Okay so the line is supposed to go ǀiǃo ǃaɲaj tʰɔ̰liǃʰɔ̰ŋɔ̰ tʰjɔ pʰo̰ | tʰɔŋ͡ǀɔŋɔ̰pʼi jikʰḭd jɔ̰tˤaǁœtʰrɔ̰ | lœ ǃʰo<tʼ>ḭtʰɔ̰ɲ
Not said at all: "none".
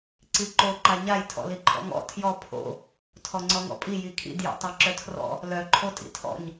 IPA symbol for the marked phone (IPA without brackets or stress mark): tʼ